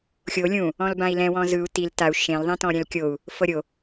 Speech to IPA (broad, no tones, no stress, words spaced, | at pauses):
xʲo lʲũ | ɔ̃lbãi̯lɛ̃wɔ̃ zɯu̯ til tau̯ ʃẽlðˤẽ tɔ̃ɾʲɛ̃lkʲou̯ | fɤɾʲo